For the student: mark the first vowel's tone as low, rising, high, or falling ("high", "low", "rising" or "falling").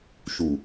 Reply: low